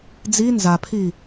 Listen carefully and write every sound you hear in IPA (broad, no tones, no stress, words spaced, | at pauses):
d͡zi nzapʰi